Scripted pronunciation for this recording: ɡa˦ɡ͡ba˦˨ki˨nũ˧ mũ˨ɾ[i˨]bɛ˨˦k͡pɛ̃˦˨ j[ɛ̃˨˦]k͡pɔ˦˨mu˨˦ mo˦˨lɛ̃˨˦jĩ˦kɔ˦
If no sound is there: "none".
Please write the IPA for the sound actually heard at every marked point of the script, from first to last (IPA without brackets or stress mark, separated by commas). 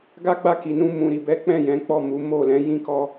i˨, ɛ̃˨˦